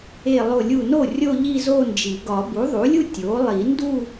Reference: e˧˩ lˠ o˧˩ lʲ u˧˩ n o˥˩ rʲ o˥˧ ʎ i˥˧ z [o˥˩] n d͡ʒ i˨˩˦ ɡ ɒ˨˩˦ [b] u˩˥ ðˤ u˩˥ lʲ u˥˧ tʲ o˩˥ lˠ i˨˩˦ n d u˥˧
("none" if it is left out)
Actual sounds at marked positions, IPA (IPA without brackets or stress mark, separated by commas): o˥˧, b